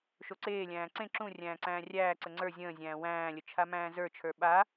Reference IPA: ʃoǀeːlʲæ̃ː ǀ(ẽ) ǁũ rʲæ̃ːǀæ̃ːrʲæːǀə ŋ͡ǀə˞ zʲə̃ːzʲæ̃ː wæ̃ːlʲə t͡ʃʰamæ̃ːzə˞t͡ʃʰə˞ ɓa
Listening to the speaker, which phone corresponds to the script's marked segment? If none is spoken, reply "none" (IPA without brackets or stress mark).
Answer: ẽ